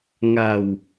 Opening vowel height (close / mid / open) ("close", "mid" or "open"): open